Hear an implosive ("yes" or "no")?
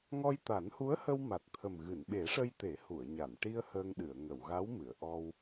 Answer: yes